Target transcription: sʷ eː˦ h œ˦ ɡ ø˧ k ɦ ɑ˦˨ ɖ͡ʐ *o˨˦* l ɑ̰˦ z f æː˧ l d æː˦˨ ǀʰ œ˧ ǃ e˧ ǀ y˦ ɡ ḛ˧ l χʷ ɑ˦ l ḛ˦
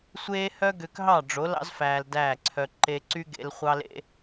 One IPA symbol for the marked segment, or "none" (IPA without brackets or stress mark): o˨˦